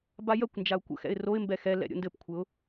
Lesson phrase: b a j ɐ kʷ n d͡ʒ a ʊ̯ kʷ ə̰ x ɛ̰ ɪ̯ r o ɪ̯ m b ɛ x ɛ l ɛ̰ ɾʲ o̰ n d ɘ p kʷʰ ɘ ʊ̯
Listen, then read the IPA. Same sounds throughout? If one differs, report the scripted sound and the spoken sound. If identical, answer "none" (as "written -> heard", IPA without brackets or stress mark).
none